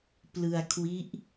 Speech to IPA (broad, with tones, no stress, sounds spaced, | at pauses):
p l ɯ˧ a̯ kʰ w i˦˥ ʔ